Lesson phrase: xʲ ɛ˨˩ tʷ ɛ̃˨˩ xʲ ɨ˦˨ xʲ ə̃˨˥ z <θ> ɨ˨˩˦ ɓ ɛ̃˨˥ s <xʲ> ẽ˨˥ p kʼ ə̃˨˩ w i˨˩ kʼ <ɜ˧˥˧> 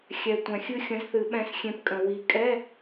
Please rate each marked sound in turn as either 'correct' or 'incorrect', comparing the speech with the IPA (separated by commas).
correct, correct, incorrect